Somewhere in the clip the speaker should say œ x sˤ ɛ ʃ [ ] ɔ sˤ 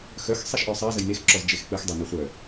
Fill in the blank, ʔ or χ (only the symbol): ʔ